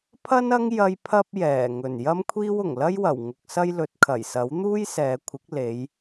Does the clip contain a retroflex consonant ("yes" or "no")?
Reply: no